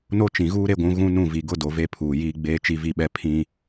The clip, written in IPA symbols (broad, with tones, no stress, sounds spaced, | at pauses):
n o˦ t͡ʃ ĩ˨ ɣ uː˦ ɾ e˦ ɡʷ ũ˨˦ ɣ ũ˦ n ũ˦˨ v i˨ ɡ ʊ˦ d o˨ v e˦ pʰ uː˨ j iː˦ ɡ͡b eː˦ t͡ʃ i˦ v i˦ ɓ ɛ˦ pʰ ĩ˦